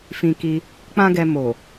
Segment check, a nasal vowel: present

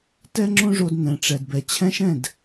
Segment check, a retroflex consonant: present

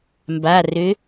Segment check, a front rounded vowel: present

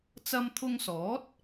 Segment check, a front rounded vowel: absent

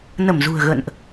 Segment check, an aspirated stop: absent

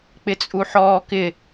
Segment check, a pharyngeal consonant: present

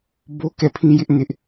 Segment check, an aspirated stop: present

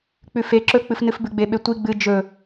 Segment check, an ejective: absent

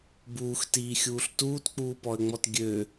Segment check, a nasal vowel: absent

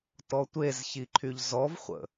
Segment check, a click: present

